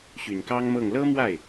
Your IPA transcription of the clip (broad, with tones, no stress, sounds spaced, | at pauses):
ɕ y˨˩ n k ɑ˥ ŋ m ɤ˥˩ ŋ l ɤ˥ m w a˥˩ ɪ̯